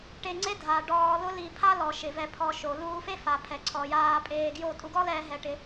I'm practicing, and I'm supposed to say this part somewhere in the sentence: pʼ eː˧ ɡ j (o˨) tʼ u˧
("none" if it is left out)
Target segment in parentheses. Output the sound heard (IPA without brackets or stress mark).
o˦˨